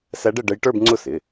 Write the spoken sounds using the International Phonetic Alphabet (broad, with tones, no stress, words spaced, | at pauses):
sæ˧˥ɖ ə˥˧ɖə˧˥j ʈə˞˥˧bŋ͡ǀʊ˥˩sɪ˩˧˩